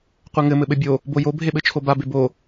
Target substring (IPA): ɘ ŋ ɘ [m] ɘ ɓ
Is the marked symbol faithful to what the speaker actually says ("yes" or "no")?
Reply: yes